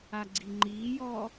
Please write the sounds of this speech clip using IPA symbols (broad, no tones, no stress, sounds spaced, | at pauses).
a ɡ͡ǀ i ŋ͡ǃ iː j ɔː